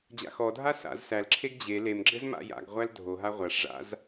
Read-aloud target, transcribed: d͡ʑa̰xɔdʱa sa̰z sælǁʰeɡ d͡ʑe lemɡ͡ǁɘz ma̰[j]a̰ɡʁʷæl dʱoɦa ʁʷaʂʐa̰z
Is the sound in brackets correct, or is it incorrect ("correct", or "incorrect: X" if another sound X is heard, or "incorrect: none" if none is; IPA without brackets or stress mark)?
correct